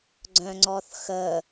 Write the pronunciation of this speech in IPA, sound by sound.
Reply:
ɡ͡ǀœ̃ŋ͡ǀɔθxə

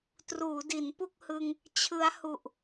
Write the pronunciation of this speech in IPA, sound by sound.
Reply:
truː˩˦di˩˦npu˥˩k̚hɯ˧ŋ | t͡ɕʰɯ˦˥a̯hu˨˩ʔ

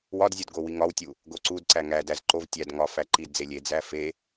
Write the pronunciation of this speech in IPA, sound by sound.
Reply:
wɒdzʲod ɡowiŋɒwtʲu | ɡoǀudǀæ ŋædæz ǃov tʲæd ŋɒ fæǃidd͡ze lʲed͡zæ fe

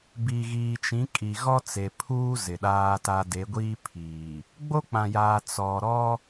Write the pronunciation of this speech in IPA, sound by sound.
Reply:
bi˨ɣiː˨t͡ʃĩ˨˦ kʼi˨ɣɔ˦t͡se˨pʰuː˦ zɪ˨ɗaː˦ta˦ de˨˦ɡʷiː˦pʰiː˨ | ɡ͡bo˦k͡pã˨jaː˨ t͡sɔ˨ɾɔ˦

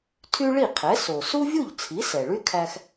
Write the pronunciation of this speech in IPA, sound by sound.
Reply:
tʰy˥ɭi˥˩qʰɛ˩˥ so˩su˥vʲu˥˩ʎ t͡sʰi˩˥sɛ˩ɭy˥kʰæ˧x

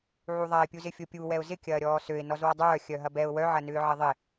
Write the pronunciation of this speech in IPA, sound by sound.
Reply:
ʕuðˤaɪ̯pʲuzɪ fʲopʲu wɛʊ̯zɪkʲɐːɾʲɔː søɪ̯nɔzwɔ dˤœː xʲœɦɐbɛʊ̯ wœʕɐ nʏːʕɪðˤɪ

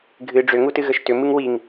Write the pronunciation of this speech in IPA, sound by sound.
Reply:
ɡʱɨ ɖ͡ʐʏŋutɨ ɣəʃtʏ mɨŋwiŋ

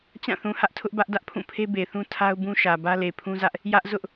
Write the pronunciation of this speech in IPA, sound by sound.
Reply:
t͡ɕã˦˨θũ˨hä˦ʔ tʰʊ˦ʔbä˦ʔ dä˦ʔpʰũ˦˨ pʰe˦be˨θũ˦ tʰa˦ʊ̯bũ˦ʃä˨bä˦ le˨pʰũ˦zä˦ʔ | jä˦ʔzʊ˦ʔ

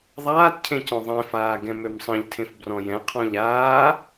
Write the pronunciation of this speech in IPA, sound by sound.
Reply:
ðˤaːtcʰẽ cɔ̃ðˤẽfaː ɡɛ̃mømsˤə̃ʎtʰẽf brɔ̃jɛ̃qʰɔ̃ʎ aː

